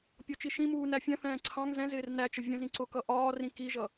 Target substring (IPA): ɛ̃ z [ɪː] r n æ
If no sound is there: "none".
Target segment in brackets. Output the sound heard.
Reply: ɪː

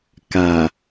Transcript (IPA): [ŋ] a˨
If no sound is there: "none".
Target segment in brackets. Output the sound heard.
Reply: k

